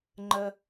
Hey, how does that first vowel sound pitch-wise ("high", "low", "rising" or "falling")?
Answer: low